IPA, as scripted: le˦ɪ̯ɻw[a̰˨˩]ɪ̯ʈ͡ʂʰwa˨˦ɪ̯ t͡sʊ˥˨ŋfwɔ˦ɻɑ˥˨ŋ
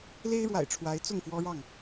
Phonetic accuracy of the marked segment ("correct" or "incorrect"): correct